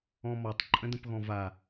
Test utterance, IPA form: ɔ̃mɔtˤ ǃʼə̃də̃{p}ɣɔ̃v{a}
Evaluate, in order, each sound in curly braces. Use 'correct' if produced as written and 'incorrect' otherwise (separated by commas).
correct, correct